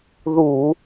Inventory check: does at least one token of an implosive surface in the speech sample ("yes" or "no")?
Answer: no